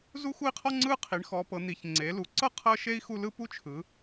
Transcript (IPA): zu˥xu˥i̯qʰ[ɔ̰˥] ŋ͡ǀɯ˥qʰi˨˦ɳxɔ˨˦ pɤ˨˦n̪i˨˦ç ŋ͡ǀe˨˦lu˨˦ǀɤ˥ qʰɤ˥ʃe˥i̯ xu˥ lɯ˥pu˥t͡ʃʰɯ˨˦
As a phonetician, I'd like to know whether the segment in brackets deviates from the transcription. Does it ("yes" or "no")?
yes